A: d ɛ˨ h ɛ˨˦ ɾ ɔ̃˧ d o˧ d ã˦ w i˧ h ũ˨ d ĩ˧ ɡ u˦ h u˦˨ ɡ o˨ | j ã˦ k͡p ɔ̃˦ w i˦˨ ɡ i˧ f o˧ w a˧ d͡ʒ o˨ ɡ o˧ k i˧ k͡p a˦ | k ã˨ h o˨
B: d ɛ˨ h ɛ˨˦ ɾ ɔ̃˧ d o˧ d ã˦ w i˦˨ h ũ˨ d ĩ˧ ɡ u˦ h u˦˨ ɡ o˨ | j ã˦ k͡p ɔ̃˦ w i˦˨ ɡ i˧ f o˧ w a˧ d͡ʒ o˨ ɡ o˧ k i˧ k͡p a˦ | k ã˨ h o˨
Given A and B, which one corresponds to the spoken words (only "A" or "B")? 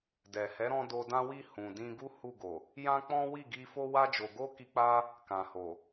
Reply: B